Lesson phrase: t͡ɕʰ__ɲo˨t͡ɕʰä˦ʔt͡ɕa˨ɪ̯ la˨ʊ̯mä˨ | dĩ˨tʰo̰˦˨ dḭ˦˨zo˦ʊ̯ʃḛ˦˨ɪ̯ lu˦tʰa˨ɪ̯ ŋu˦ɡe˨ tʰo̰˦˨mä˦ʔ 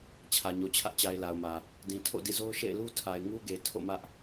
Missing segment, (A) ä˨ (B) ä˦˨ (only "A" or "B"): A